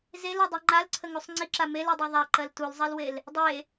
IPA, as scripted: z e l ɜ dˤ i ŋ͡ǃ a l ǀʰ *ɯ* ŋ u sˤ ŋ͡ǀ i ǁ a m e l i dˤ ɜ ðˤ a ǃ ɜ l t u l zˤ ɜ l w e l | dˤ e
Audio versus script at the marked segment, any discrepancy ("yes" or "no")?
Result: yes